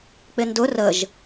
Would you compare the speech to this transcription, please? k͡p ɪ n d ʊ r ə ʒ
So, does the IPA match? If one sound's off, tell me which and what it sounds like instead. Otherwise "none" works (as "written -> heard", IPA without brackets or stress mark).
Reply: none